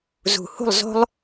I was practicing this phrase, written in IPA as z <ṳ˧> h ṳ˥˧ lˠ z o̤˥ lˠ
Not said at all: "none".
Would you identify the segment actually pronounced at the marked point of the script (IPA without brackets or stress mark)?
ṳ˧˩